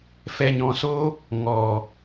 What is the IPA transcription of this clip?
f ɛ˨ ɲ ɔ̃˨ s o˧ | ŋ ɔ˨

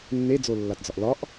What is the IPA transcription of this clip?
nː e d͡z o lː a t d͡z ɒ ʔ l ɒ ʔ

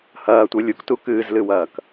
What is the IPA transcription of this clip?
h ɐː tʷ e lʲ u k t u k ɨː z l ɨ w ɐː k

